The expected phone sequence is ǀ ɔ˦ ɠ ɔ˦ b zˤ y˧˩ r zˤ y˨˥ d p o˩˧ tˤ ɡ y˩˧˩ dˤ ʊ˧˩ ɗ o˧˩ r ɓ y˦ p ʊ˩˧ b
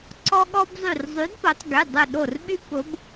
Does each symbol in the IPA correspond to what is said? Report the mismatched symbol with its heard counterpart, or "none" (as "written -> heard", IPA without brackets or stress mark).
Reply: none